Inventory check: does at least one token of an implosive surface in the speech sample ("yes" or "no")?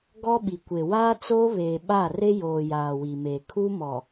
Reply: yes